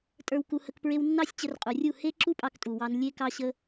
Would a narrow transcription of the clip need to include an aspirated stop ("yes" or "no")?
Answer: no